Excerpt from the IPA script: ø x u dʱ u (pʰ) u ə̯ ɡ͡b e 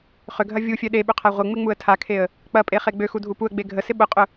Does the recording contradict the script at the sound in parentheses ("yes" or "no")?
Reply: yes